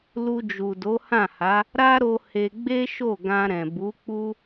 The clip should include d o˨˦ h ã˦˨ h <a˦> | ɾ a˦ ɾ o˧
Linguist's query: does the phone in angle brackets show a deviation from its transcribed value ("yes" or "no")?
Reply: yes